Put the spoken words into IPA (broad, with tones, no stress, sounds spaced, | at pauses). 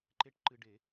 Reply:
ǃ e˧ ʈ ǃ ɨ˧ ɖ e˨˩˦